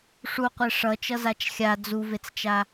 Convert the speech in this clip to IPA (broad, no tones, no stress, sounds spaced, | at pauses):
ʂ u qʷ e ʂ ʌ t͡ʃ ʌ z a t͡ʃ xʲ a d͡z u v e t͡s t͡ʃ a